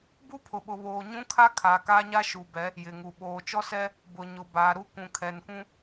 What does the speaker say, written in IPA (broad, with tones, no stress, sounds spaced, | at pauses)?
b u˦ pʰ ʊ˨ ɓ ʊ˨ β oː˨ ɲ ũ˦ kʰ a˦ kʰ aː˨ k aː˦ ɲ a˦ ʃ u˨ b ɛ˨˦ | j ɪ˨ ŋ u˨ ɓ oː˨ t͡ʃ ɔ˦ s ɛ˦ | b ʊ˨ ɲ ʊ˨ b aː˨ ɾ u˦ k ũ˨ kʰ ɛ˨ n kʷ ũ˦